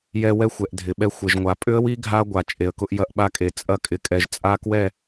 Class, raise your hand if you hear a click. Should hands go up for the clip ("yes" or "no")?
no